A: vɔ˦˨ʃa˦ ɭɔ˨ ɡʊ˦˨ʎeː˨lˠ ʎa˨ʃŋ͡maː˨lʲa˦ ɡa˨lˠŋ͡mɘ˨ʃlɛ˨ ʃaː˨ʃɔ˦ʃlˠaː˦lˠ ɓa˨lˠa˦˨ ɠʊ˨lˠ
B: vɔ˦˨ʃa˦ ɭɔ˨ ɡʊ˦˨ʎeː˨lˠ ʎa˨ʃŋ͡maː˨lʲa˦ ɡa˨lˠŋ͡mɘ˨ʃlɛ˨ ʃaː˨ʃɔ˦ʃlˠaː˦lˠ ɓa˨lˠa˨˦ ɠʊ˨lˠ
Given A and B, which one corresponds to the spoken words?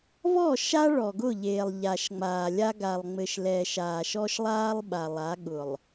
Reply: B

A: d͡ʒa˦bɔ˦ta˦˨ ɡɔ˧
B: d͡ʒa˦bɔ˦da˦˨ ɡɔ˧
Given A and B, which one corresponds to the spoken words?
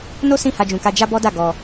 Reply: B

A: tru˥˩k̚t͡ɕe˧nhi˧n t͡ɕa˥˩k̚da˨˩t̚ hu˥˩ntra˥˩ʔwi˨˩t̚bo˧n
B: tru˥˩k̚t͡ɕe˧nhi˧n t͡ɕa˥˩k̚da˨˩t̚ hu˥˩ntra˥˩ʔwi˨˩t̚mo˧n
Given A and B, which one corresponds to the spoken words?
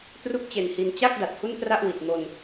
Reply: B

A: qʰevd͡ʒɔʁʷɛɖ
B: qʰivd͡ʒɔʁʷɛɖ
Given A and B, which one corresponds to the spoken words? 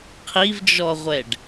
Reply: B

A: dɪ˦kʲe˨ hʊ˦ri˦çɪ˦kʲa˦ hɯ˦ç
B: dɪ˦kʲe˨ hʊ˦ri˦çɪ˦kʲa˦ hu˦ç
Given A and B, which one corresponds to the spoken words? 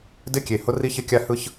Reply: A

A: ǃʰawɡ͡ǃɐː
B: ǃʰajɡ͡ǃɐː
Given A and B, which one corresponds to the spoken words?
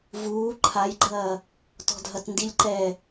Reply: B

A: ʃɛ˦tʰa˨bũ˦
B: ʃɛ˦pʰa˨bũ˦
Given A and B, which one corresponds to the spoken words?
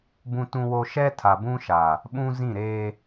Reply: A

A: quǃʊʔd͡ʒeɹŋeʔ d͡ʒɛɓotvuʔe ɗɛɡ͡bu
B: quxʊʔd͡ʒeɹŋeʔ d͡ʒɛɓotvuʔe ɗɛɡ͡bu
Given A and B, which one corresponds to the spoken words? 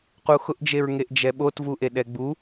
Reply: B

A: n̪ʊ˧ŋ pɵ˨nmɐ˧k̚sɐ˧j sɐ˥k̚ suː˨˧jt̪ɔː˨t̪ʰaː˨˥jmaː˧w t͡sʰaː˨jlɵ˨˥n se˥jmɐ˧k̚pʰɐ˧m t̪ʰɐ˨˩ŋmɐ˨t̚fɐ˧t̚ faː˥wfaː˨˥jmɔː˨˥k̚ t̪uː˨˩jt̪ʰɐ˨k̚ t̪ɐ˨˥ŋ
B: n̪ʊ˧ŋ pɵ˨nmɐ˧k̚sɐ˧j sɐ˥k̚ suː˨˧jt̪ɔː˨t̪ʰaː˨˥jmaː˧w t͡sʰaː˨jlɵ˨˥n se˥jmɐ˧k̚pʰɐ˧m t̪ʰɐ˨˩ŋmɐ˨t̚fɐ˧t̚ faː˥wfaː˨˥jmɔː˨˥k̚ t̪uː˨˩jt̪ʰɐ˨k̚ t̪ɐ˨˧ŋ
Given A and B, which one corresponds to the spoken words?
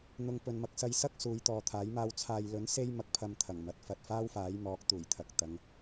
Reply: B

